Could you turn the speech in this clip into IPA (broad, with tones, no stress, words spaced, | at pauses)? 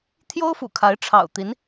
t̪ʰjo˥ʊ̯fṵ˨˩kʰa˧˥ɪ̯ ʈ͡ʂʰɑ̰˨˩ʊ̯t̪i˧˥n